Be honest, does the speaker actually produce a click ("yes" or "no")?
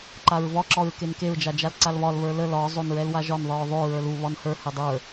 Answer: yes